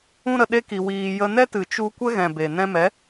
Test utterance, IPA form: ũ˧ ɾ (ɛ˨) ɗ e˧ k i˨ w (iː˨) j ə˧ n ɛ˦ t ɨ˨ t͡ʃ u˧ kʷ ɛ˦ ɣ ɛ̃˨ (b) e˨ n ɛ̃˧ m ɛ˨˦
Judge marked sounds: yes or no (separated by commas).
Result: no, yes, yes